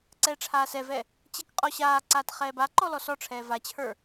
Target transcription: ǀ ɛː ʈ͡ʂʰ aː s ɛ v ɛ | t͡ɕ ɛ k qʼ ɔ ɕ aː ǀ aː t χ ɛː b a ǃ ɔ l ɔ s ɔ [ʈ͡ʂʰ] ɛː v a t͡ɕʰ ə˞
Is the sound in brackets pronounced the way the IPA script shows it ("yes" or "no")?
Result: yes